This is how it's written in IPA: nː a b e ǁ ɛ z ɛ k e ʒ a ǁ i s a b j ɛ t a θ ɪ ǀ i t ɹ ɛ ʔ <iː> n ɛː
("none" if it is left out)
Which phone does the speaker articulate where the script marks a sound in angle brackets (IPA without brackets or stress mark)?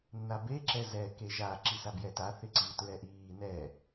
iː